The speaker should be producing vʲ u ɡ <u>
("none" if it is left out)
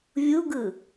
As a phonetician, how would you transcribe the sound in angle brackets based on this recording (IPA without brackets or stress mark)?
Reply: ɯ